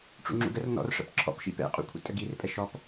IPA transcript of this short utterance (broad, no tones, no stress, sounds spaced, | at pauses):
ʈ͡ʂ ṵ ŋ͡ǁ ṵ ɡ ə r n ɔ̰ r ʂ ə̰ p ǁʰ ɔ̰ p ʃ ḭ p ɛ̰ qʼ ṵ kʷʰ ə̰ tʼ ə ɡ i r pʼ ɛ ʃ ɔ p